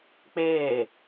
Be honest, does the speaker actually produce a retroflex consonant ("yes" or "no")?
no